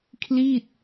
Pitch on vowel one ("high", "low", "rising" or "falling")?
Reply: falling